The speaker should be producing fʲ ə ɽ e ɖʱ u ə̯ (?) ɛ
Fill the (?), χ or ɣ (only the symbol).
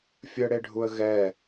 ɣ